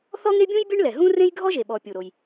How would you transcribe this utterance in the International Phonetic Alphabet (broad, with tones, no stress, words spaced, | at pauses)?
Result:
θɔ˥ŋe˥bʲũ˥j bʲɛ˥ɳlɛ˩ ɦũ˥ rẽ˥jɡʱɔ˥ʒe˩ɓɔ˩ pʲu˩ɾo˩j